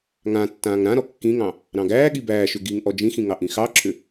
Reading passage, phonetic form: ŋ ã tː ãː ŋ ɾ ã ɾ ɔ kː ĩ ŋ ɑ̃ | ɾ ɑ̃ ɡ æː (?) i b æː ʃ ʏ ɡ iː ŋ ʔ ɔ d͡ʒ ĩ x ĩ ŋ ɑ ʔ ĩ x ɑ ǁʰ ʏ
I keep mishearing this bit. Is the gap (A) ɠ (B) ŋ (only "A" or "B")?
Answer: A